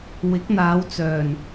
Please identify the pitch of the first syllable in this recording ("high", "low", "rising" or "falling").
rising